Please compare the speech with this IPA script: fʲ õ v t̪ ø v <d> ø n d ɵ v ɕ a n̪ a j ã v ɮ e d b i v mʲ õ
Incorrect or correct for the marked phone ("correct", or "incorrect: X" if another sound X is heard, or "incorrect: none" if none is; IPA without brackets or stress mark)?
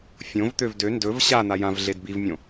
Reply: correct